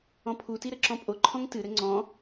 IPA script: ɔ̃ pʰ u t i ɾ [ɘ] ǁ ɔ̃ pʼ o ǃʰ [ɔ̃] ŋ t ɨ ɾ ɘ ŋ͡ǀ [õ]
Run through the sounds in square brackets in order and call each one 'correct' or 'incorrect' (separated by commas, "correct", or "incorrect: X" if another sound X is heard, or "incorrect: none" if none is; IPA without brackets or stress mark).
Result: correct, correct, incorrect: ɔ̃